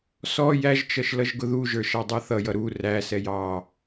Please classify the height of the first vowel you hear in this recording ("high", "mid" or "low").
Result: mid